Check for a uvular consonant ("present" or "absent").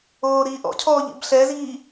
absent